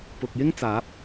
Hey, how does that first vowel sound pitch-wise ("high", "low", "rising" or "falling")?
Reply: low